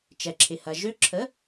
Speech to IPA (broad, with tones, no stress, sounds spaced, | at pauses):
t͡ʃ ɛ˩ ǁʰ ɪ˩ h ɐ˩ ʒ ø˧˥ ǁʰ ə˩˥